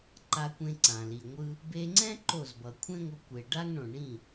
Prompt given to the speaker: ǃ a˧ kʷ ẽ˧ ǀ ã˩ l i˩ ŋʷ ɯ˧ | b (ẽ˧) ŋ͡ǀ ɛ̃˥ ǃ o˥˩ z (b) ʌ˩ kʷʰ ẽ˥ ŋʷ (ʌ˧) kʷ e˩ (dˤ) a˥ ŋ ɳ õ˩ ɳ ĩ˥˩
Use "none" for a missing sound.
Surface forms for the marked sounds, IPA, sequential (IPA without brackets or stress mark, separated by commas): e˧, b, ʌ˧, ɖ